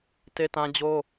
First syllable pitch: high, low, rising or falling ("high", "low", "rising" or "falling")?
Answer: high